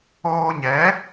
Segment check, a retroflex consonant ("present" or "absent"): absent